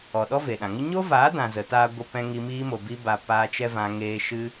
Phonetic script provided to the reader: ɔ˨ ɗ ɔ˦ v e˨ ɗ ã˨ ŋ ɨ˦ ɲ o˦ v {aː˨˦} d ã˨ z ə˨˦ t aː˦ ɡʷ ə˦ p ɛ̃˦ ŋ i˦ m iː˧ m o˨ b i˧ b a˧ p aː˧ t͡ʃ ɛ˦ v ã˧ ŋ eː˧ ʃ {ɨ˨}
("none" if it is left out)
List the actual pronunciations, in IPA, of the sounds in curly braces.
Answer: aː˨˦, ɨ˦

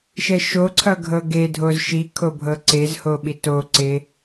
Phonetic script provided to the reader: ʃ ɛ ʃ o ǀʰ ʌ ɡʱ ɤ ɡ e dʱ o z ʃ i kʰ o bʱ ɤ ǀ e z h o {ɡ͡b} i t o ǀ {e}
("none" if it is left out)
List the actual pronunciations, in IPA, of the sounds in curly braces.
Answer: ɓ, e

